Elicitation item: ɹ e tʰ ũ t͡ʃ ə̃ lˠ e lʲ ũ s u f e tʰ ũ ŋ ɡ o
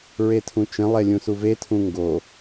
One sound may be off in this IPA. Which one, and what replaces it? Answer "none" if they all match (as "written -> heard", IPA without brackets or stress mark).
f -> v